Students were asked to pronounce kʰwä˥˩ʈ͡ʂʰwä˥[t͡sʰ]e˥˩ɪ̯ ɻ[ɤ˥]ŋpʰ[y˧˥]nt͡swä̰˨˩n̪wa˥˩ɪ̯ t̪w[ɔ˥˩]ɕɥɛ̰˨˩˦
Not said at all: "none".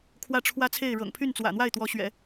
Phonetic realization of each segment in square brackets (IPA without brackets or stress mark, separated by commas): t͡sʰ, ɤ̰˨˩, y˥˩, ɔ˧˥